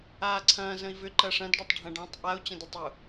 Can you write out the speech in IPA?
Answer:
aː ǀʰ ɐ̃ː z ə̃ i̯ v ʏ ǃ ɐ ʂ ɐ̃ d ɖ ɐ tˤ ɖʱ ɐ̃ ɖ ɔ̃ tˤ ʔ a u̯ t͡ɕ ɐ̃ d ʊ tˤ ʏ u̯

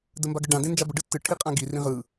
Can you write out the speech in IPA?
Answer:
d ə m b a ɡ ə ɖ ã d ẽ n d͡ʒ a b ə ɖ ɯ tː ɯ ʈʰ i qʼ ã ɡ i r ĩ ʁ ɯ

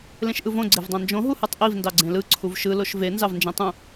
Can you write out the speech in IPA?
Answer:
l ẽ ʃ ʔ ɯ v õ ɡ͡ǀ e v dˤ ɑ̃ n d͡ʒ õ ɦ u h ɯ tˤ ʔ i v n d ɑ ɡ͡ǀ ẽ l ɯ ǀʰ u v ʃ ɯ l o ʃ v e n z ɑ v n d͡ʒ ẽ tˤ ũ

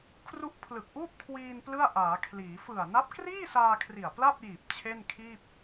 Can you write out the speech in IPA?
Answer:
kʰ r u˦˥ ʔ pʰ l ɯ˨˩ k̚ ʔ uː˥˩ p̚ kʰ w iː˧ n p l ɯ˥˩ a̯ ʔ aː˩˦ kʰ l iː˩˦ f ɯ˨˩ a̯ n a˦˥ p̚ k r iː˥˩ s aː˧ kʰ r i˨˩ a̯ p l a˥˩ p̚ j iː˨˩ p̚ t͡ɕʰ e˥˩ n kʰ iː˥˩ p̚

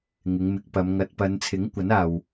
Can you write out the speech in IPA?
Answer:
ŋ ɪ˨˧ ŋ m ɪ˨˥ k̚ p ɐ˨˧ m ŋ ɐ˨˥ t̚ p ɐ˨˧ n t͡sʰ ɪ˨˥ ŋ kʷ ɐ˨˥ n aː˨ w

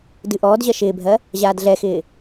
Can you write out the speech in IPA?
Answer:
d ɨ ʔ ɔː d ʑ ɜ ʃ ɪː bʱ ɜ | ʑ aː d ɮ ɛ x ɪː

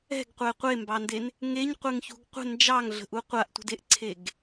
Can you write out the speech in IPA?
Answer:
ɛ̤ ɡ qʷ ɛ qʷ e m b ɑ n d e n | ŋ e ɲ qʷ e ŋ ç ṳ ɡ qʷ ə̤ n d͡ʒ ɑ ŋ ɮ ə̤ ʔ u qʷ a ʔ tʷ ə̤ d e ʔ ǀʰ e ɡ

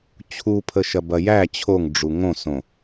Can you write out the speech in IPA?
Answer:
t͡ɕʰ u pʰ ə ʃ ɐ b ɐ j æ t͡ɕʰ o ŋ ɖ͡ʐ u ŋ õ s õ

